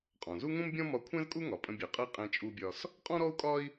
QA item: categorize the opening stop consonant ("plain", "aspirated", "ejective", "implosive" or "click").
ejective